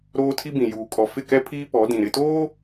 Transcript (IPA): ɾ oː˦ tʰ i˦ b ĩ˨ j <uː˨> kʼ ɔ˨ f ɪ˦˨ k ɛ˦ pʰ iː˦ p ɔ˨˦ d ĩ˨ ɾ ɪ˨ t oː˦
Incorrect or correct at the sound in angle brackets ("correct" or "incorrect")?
correct